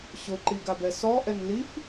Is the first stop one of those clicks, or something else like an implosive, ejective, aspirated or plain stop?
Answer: click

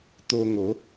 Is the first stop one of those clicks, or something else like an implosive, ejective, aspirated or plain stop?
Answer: plain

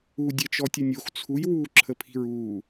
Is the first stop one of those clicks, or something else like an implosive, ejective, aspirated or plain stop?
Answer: plain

